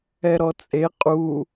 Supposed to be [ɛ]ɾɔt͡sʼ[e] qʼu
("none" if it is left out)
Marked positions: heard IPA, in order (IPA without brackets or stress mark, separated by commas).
ɛ, e